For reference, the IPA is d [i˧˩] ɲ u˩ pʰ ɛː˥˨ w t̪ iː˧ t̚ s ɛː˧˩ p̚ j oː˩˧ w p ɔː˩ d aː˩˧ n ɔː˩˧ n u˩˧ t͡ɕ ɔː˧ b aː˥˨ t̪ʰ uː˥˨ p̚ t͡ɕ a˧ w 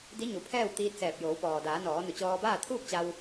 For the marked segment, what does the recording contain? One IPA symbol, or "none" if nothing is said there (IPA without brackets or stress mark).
i˧˥